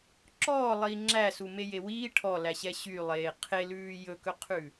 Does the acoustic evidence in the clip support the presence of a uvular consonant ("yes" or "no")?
yes